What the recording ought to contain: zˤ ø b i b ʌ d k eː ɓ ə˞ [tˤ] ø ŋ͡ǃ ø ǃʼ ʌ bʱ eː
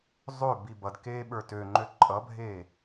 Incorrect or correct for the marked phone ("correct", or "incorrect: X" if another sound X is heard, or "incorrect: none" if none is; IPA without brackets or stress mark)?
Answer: incorrect: t